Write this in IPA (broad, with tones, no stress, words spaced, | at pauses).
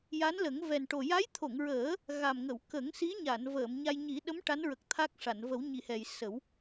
ja˧˥nlə˨˩˦ŋ vɛ˨˩nʈo˨˩ ja˧˥jt̪ʰo˨˩˨ŋɹəː˨˩˦ | ɣa˨˩mŋə˨˩˨w kə˨˩˦ŋsi˧˥ɲa˨˩˨n vəː˨˩˨mɲa˧j ɲi˨˩˦ɗə˧˥m ʈa˧˥nɹə˨˩k̚ t̪ʰa˦˥k̚ʂa˨˩˨n və˨˩˦wɲi˨˩˨hɛ˨˩j sə˨˩˦w